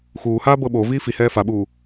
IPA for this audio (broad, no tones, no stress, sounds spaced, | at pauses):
x uː h aː b ɤ ɓ o v iː f i h ɛː f a ɓ uː